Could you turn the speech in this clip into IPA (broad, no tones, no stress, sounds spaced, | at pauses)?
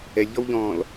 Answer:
ɛ lʲ ʎ ɔ w ʎ ɔ̃ː l